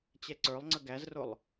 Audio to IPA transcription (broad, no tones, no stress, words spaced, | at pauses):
t͡ɕɛǀə˞lˠŋ͡ǀə ɡæzrʊlˠ